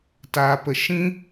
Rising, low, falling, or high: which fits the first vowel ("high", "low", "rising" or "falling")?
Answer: low